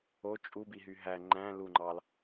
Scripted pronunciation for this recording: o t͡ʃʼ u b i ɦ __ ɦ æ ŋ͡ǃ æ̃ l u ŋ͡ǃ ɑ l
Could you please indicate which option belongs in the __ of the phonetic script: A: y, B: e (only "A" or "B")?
A